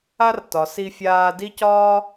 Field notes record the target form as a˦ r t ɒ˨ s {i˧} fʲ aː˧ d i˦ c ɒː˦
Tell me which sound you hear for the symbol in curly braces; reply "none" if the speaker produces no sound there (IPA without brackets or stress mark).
i˧